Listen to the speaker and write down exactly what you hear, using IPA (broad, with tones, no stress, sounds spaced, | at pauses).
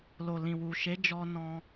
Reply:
l o˨ l ĩ˨ w u˨ ʃ e˨˦ d͡ʒ ɔ˧ n ɔ̃˧